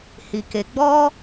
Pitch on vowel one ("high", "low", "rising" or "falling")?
low